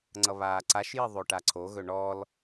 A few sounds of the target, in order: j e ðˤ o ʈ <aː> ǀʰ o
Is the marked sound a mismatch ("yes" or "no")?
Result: yes